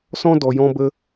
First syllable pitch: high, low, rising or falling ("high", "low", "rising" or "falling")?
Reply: high